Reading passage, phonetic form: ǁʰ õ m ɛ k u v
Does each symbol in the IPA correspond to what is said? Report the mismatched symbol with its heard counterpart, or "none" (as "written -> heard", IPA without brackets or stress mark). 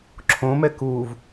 none